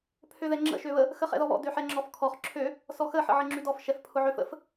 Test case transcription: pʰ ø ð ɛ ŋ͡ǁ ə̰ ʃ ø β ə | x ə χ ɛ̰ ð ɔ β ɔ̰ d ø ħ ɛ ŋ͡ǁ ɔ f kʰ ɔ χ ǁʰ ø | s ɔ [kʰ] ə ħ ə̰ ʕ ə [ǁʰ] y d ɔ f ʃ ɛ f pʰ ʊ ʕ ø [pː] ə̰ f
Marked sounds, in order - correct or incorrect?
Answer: incorrect: x, incorrect: ŋ͡ǁ, incorrect: f

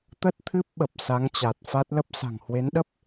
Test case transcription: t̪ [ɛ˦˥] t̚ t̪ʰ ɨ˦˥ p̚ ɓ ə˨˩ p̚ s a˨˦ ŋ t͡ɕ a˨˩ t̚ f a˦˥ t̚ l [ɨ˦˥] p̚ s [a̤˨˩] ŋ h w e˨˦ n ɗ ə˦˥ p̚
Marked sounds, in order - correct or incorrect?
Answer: incorrect: ə˦˥, incorrect: ə˦˥, correct

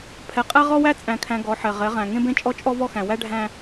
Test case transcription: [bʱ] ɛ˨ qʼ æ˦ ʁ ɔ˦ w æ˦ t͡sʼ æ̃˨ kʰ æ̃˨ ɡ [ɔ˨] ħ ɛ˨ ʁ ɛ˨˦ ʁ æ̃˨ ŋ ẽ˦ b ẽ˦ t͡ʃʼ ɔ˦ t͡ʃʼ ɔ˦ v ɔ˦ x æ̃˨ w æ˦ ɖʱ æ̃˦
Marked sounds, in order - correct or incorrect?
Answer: incorrect: pʰ, incorrect: ɔ˨˦

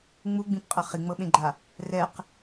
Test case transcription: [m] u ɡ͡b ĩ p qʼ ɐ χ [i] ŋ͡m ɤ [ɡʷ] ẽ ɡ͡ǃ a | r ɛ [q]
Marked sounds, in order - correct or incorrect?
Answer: incorrect: ŋ͡m, correct, incorrect: ɓ, correct

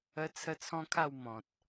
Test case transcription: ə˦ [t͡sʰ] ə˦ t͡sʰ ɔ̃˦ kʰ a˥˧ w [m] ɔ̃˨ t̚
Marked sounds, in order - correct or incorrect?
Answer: correct, correct

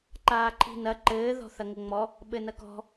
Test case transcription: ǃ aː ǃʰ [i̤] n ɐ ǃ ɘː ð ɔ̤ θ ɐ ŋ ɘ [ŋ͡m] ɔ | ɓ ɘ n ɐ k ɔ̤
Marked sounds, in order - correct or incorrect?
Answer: correct, correct

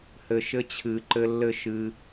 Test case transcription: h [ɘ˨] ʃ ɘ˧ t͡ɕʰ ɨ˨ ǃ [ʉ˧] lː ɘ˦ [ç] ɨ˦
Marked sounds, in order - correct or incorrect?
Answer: correct, incorrect: ɘ˧, incorrect: ʃ

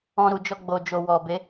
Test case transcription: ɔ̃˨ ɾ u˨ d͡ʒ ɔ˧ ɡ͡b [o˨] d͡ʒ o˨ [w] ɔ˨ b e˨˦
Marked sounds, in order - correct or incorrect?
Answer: correct, correct

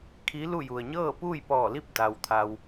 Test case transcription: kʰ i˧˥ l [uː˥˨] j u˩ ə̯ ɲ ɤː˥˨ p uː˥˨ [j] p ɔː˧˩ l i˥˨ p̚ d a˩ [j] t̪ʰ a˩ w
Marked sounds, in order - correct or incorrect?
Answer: incorrect: u˥˨, correct, incorrect: w

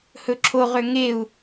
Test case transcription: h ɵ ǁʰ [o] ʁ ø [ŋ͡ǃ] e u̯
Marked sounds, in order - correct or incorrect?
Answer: correct, incorrect: ŋ

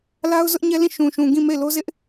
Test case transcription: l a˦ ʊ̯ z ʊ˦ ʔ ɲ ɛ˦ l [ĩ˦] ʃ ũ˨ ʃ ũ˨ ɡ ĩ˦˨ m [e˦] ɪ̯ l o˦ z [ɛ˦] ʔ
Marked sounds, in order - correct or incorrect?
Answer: incorrect: ĩ˦˨, incorrect: e˦˨, incorrect: ɪ˦

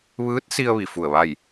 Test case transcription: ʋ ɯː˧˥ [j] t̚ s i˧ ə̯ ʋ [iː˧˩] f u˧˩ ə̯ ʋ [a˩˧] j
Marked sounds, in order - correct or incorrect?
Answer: incorrect: none, incorrect: i˧˩, incorrect: a˥˨

